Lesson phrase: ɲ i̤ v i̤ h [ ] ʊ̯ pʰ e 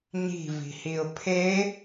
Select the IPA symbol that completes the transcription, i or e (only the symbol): i